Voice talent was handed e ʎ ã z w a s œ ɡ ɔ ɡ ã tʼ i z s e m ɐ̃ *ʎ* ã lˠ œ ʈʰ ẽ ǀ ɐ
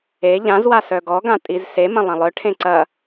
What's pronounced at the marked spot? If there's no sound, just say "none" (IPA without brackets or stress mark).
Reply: lˠ